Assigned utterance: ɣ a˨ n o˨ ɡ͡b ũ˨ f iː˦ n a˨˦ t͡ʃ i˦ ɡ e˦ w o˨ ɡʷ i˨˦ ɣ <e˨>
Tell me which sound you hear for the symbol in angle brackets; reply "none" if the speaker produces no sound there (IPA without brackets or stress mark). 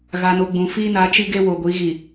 i˨